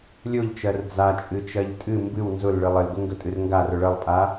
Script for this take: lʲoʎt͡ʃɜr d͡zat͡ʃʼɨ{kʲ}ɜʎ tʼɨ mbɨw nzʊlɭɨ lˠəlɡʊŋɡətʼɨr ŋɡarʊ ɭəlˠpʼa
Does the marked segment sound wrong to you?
yes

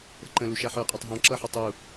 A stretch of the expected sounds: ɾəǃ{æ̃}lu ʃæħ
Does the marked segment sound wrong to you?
yes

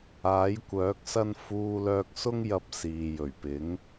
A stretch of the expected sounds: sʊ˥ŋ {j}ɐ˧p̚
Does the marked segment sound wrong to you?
no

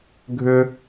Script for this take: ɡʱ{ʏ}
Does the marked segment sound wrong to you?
no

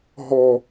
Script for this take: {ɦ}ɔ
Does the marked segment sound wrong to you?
no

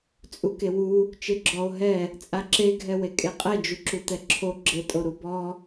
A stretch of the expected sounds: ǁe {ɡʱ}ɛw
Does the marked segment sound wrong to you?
no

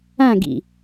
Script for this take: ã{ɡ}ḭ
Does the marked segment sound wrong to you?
no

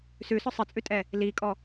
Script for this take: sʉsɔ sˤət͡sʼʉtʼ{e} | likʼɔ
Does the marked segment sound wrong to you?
yes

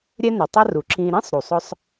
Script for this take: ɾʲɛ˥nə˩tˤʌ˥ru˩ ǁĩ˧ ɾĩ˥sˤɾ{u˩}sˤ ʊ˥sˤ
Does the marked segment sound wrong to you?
no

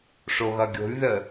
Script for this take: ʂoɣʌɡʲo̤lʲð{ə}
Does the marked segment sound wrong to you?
no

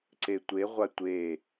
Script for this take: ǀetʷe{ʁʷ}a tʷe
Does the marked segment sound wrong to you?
no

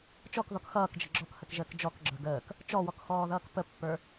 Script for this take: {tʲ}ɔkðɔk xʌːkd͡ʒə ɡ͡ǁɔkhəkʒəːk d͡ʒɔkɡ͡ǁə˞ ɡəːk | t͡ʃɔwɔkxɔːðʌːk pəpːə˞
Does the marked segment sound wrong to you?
yes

